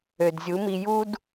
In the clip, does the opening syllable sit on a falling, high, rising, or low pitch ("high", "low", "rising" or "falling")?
low